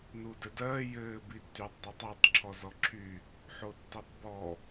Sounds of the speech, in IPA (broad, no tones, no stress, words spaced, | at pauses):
nuːdɘdɜː jɘː bitːyːtˤdˤutˤɘːtˤ ǁʰɔzɔǁʰy | ħotːetˤbɔ